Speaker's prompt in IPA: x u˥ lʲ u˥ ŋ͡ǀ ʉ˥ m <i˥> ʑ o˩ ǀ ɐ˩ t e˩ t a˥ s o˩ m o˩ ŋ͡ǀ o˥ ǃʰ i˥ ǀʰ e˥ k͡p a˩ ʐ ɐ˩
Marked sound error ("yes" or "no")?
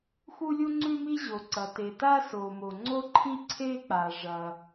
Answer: no